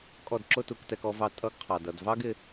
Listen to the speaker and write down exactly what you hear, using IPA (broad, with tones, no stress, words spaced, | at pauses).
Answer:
kʼɔ˥˩dǁʊ˥ tu˧˥ktɛ˧˥kɔ˧˥vɑ˥˩ tʼʌ˧˥ɡqʰɑ˩dʌ˩dvɑ˥ɡ ɪ˧˥